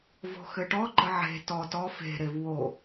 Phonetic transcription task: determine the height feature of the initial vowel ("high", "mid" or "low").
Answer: mid